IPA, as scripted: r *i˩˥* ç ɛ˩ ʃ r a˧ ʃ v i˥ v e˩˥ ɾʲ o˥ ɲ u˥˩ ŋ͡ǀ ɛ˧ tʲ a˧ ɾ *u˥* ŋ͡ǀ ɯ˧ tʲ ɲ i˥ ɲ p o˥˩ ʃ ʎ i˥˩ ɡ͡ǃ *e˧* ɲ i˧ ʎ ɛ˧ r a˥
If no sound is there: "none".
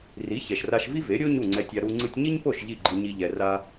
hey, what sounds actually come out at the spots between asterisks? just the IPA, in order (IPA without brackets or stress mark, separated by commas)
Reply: i˩˥, u˧, i˧